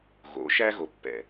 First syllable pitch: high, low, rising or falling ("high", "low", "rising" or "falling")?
rising